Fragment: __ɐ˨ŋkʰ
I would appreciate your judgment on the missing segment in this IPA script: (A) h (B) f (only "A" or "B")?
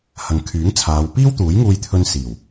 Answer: A